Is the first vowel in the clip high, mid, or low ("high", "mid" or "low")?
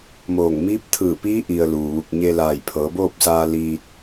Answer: mid